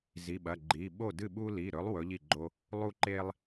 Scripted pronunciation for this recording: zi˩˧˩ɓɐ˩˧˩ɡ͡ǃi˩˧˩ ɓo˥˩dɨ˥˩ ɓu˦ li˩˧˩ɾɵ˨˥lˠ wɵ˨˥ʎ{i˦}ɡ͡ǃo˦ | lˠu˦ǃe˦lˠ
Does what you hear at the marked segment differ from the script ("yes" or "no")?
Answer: yes